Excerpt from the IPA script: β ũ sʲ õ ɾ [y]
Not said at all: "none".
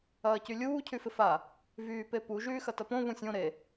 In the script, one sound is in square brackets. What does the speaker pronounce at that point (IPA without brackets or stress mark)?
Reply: e